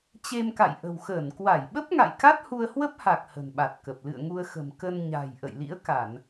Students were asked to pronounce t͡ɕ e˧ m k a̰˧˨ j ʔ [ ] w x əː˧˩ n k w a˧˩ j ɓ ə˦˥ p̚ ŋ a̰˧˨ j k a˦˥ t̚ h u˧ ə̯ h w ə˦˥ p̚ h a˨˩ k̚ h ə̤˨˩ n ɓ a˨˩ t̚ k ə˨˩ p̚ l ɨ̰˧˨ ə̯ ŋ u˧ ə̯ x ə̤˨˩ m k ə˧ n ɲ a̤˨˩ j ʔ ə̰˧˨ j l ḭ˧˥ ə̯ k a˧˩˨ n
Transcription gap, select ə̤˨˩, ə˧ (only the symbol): ə̤˨˩